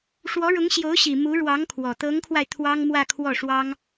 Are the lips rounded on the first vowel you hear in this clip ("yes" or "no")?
yes